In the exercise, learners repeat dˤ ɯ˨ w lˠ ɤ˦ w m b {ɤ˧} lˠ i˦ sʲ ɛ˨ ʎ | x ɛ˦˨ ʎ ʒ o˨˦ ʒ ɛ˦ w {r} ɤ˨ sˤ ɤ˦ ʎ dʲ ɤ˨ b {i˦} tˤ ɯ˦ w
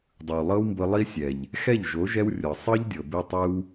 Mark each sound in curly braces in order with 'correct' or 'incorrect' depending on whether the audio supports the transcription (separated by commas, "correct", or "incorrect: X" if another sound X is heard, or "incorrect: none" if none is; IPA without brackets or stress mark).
correct, incorrect: rʲ, incorrect: i˧